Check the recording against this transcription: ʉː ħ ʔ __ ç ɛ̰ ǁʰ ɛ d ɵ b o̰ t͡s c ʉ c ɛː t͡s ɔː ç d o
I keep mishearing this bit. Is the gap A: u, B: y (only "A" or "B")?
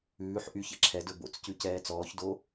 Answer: B